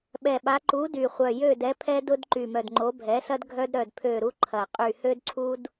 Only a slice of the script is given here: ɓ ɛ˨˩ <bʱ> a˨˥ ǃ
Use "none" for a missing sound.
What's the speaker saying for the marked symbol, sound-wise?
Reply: ɓ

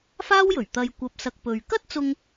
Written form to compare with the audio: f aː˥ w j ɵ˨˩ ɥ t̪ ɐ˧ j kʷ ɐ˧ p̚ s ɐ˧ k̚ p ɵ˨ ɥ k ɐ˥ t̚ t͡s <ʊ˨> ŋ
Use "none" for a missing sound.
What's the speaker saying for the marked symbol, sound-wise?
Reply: ʊ˧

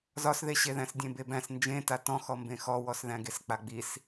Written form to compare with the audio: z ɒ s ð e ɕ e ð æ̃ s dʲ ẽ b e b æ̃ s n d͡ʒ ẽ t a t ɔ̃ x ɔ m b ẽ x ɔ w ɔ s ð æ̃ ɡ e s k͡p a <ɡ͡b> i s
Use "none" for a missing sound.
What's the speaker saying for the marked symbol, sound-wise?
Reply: ɡ͡b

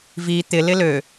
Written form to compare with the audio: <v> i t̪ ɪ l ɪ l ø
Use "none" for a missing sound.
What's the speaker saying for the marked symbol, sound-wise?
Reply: v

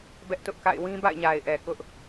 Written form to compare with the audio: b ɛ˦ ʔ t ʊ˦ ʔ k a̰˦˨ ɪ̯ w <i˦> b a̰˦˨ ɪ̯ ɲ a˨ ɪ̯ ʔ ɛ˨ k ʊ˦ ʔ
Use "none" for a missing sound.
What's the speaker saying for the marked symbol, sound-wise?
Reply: ĩ˦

